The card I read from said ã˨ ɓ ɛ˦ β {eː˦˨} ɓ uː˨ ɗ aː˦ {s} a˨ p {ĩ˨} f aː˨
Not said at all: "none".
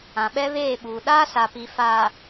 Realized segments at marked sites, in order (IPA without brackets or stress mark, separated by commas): eː˦˨, s, i˨